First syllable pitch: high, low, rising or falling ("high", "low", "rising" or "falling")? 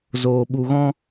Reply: low